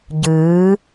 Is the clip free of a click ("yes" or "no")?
yes